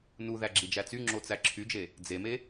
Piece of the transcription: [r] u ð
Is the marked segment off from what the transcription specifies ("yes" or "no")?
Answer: yes